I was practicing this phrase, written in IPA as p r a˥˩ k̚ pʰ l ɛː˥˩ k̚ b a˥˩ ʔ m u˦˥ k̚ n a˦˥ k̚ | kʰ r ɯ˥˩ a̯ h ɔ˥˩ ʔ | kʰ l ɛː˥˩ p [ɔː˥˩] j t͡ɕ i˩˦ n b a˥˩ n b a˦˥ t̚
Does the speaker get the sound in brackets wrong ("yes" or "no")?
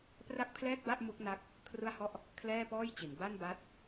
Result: no